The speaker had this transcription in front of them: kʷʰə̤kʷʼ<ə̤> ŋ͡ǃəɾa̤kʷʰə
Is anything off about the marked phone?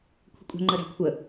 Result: no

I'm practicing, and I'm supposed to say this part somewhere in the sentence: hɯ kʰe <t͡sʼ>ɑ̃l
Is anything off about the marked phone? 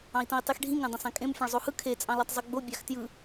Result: no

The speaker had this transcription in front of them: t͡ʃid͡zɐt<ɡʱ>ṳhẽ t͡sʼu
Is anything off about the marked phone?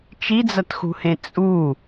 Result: yes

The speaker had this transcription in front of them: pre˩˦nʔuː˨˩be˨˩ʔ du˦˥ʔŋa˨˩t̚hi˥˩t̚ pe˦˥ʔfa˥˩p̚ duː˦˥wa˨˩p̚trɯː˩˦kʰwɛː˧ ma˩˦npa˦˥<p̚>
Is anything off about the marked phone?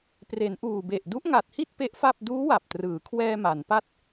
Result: yes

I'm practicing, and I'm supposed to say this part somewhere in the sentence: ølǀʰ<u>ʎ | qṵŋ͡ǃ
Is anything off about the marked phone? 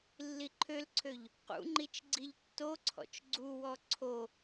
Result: yes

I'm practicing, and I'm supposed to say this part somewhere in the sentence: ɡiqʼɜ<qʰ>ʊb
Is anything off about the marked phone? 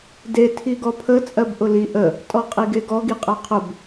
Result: no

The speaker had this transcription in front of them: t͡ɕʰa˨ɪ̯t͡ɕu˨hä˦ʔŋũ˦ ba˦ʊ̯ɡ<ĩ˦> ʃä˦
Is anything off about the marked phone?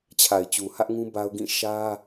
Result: yes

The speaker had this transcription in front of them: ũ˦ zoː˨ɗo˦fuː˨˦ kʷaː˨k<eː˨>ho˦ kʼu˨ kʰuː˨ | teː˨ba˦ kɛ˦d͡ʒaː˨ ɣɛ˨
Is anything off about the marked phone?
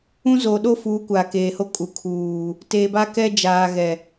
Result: no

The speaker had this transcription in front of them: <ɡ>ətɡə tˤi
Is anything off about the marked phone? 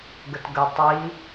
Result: no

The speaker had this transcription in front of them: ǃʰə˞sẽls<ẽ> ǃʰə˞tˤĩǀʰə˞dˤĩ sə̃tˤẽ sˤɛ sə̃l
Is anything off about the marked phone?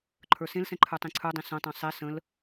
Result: yes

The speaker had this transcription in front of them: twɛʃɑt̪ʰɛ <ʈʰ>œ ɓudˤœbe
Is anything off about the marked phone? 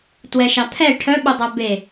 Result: no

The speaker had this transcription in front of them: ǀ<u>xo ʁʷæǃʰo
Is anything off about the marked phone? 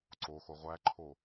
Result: yes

